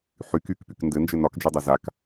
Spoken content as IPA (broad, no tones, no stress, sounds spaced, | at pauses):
ħ y k y k p y k n d ɘ n d͡ʒ ɘ n ɒ k d͡ʒ y dˤ ɛ z a k